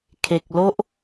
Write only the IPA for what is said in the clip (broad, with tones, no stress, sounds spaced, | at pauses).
kʰ e˨ k̚ l o˦ ʔ